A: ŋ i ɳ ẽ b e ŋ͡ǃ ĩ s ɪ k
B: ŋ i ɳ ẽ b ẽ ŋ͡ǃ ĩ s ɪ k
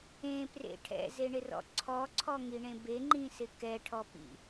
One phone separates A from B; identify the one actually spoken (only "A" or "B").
A